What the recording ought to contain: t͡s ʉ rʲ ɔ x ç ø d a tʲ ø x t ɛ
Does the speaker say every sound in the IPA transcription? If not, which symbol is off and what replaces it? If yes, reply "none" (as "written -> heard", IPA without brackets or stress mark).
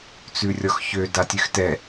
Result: none